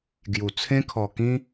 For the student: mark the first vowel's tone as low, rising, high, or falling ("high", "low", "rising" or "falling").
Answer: low